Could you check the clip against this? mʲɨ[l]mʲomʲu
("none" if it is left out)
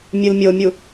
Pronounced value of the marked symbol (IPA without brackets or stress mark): l